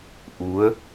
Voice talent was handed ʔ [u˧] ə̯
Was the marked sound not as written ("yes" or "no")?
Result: yes